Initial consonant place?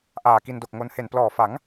glottal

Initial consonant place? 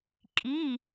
velar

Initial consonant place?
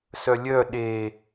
alveolar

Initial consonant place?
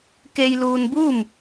velar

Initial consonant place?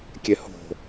velar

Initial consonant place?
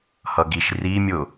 glottal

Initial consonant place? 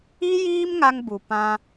palatal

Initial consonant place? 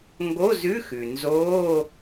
velar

